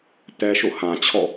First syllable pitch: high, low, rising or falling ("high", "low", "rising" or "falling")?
high